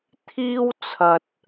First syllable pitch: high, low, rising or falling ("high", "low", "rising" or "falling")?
high